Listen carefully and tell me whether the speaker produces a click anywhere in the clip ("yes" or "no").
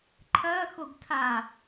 yes